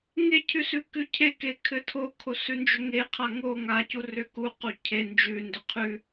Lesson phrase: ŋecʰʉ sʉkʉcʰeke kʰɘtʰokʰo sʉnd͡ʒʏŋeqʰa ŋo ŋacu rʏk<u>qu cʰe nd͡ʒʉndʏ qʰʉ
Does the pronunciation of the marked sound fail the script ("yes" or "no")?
no